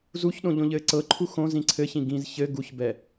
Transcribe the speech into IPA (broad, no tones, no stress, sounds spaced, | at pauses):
z u ç ɗ õ ʎ õ ʎ ɘː ǀ ɤ ǃʰ u x õ z ĩ ǀʰ ɘ ç ĩ ɡ ĩ z ç ɘ ɡ u ç b ɛ